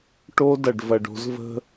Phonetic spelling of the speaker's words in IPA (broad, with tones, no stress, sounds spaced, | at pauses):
ʈ o˦ d ɐ˨ ɖ v ɐ˨ ɖ o̤˧ z v ə̤˦